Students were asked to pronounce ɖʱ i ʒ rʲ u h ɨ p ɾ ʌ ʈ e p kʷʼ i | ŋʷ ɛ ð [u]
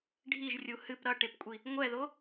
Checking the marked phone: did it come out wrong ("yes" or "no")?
yes